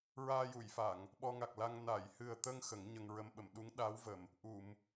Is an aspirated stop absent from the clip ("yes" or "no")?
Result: yes